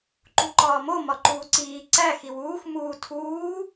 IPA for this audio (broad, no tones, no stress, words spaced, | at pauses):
ǃuǃɒːmo mɒǃuːǀiː ǀæ xiwuːx muːtʰuː